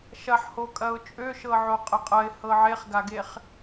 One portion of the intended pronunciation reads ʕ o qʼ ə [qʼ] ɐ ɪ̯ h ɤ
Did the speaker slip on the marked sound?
no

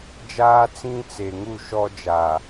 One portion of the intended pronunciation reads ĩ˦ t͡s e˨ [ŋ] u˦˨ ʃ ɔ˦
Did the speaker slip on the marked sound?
no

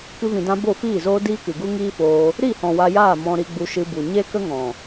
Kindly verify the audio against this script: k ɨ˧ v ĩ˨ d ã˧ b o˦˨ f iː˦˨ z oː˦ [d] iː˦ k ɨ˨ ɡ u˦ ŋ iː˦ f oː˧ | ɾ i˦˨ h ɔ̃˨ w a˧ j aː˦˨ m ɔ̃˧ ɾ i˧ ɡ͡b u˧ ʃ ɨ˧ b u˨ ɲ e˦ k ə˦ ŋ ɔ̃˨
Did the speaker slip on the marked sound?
no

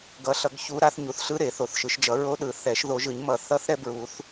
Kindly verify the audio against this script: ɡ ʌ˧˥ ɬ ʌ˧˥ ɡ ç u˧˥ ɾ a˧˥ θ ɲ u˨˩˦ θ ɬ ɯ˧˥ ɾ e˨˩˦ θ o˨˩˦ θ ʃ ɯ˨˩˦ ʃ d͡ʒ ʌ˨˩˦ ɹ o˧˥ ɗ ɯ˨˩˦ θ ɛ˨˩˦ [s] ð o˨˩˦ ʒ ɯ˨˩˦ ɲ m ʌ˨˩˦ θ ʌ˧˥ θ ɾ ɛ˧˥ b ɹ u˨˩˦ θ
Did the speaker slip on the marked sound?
yes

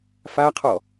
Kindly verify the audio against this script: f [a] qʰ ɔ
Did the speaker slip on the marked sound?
no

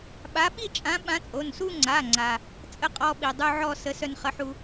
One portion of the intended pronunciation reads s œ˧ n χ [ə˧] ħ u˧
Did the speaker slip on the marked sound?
yes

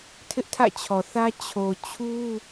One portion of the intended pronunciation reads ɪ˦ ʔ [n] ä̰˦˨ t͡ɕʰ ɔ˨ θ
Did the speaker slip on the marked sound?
yes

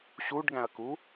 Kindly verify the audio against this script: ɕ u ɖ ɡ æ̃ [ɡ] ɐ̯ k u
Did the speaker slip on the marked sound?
yes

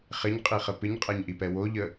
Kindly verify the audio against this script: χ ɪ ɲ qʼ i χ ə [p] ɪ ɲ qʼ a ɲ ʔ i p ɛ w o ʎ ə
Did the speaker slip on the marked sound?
no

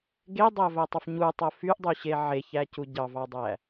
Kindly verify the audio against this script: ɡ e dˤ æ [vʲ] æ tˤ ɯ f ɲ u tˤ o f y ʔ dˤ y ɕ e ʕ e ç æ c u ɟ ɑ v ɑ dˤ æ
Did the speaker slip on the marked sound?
yes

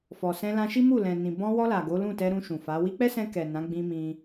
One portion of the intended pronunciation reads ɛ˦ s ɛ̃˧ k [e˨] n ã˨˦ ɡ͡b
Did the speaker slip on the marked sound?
yes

